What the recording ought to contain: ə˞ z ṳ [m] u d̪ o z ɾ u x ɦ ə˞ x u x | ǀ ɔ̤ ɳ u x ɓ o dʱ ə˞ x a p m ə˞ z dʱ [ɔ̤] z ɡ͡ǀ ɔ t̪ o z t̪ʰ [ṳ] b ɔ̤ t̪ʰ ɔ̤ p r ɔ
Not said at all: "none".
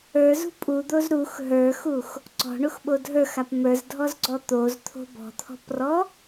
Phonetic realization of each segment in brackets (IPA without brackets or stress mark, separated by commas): pʼ, ɔ, o̤